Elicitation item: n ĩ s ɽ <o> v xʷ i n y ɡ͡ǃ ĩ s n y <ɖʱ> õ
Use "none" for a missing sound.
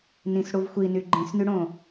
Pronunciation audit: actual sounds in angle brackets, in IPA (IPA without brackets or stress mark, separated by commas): u, ɽ